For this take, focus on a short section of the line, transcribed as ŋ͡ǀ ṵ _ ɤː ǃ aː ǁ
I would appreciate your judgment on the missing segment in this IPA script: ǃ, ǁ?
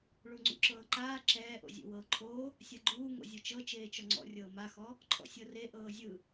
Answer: ǁ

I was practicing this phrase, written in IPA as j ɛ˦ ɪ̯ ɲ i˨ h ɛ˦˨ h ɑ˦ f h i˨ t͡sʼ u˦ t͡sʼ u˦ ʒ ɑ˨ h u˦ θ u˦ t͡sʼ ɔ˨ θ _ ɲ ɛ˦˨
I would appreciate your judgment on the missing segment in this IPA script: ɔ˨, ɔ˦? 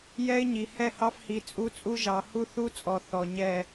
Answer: ɔ˨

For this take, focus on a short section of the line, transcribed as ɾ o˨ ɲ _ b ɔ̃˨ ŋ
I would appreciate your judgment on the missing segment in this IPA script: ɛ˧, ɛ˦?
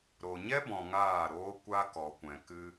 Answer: ɛ˦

